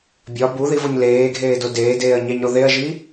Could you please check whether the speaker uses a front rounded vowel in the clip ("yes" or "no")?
no